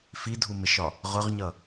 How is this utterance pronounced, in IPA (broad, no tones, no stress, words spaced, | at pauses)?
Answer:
fidʱumɪʃɒ | ʁʊʁɲʌ